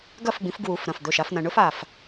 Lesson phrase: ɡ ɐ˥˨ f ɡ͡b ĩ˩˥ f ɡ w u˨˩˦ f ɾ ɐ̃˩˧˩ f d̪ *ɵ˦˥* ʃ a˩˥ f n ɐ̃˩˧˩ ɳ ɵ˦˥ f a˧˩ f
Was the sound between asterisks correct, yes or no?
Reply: no